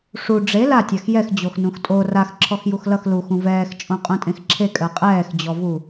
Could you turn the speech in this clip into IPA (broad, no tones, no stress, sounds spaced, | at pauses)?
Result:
ʂ u ɖ͡ʐ e l a tʲ a x j ɛ x d͡ʑ o x n ũ x tʼ o r a x ǁʰ ɔ x j u x l ʌ x l u x ũ v ɛː x t͡ʃʼ õ qʼ ũ tʼ ẽ x ǁʰ e kʼ ɜ qʼ ɛː x d͡ʑ ɔ v u